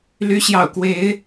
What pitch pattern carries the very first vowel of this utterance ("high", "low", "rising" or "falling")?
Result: rising